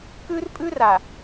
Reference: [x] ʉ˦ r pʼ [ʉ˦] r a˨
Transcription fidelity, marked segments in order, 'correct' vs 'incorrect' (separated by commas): incorrect, correct